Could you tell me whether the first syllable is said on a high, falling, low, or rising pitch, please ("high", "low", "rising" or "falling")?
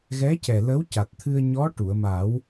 rising